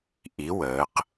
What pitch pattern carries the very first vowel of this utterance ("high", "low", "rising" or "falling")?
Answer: rising